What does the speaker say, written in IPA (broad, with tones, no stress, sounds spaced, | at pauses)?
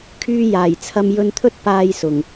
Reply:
kʰ yː˧ j aː˨˩ j t͡sʰ ɐ˧ m j ɵ˧ n t̪ʰ ɵ˥ t̚ p aː˧ j s ʊ˨˩ ŋ